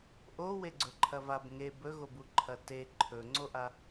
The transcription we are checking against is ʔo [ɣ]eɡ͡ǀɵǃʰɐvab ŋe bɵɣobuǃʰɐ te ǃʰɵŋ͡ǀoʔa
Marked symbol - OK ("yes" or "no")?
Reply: no